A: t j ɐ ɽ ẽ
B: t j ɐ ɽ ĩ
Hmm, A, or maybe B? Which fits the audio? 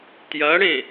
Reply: A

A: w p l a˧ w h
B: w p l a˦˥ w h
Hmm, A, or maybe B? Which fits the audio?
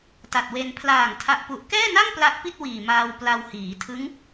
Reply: A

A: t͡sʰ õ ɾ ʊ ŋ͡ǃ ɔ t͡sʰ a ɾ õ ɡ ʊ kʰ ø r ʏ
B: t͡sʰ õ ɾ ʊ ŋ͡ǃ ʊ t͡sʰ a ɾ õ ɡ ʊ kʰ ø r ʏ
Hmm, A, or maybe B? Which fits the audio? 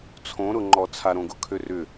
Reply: A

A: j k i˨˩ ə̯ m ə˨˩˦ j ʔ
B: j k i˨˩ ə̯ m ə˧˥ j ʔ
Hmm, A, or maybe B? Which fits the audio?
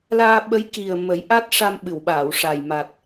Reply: A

